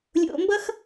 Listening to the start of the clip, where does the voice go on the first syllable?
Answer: low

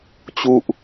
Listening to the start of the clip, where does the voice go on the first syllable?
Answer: falling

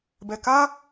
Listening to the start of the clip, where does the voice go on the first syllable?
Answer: low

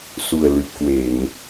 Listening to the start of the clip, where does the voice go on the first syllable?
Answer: low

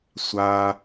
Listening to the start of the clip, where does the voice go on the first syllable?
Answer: high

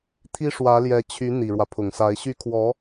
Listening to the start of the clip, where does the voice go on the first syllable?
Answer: high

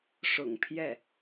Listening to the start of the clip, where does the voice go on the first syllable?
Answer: low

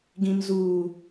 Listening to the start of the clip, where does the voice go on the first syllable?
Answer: low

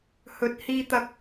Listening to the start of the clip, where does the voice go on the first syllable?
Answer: rising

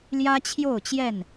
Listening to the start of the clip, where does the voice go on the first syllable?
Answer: high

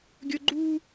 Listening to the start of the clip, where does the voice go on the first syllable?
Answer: high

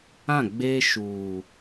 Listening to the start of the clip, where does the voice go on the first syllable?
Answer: falling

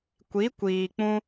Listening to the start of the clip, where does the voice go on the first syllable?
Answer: rising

